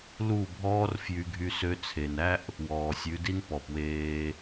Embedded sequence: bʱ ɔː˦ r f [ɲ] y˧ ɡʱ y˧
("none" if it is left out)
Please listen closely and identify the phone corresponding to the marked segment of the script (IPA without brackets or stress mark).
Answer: j